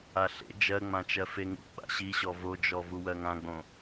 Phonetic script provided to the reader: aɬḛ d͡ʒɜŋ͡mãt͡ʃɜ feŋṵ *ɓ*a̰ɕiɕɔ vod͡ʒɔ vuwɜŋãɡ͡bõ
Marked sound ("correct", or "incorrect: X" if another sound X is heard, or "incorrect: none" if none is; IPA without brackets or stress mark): correct